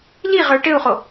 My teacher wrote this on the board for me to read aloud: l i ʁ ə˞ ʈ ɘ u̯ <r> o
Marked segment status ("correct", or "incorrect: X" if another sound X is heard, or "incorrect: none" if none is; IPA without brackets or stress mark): incorrect: χ